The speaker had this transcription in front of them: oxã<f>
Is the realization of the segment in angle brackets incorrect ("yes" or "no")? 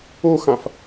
no